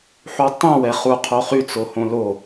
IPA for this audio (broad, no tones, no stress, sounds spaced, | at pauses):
ħ u tˤ ɛ̃ w ɛ χ u qʰ o χ y t͡s o h õ l o